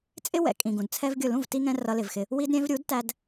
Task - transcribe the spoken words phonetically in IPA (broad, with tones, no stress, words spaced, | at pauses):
t͡sʼɪ˦wɛ̰˨ kʼĩ˨ɡũ˨dt͡sʰɛ˦vɡʲʊ˦˨ lũ˦˨vti˧ŋɛ̃˧ rʌ˧lɪ˨vxɪ˧ | wi˧dɾʲɛ̃˧vɾʲu˨˦dtæ˧d